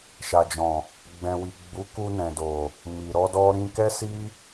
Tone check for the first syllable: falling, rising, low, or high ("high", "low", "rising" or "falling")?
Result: low